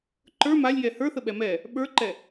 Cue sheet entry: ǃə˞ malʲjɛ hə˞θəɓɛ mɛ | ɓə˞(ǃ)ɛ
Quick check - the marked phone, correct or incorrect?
correct